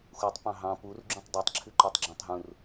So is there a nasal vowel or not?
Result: yes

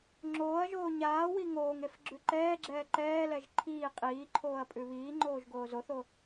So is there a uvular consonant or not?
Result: yes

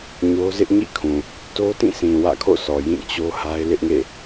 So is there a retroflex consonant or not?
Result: no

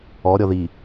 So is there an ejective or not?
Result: no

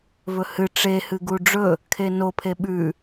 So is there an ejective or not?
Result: no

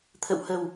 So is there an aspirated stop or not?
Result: yes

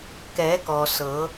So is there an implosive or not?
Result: no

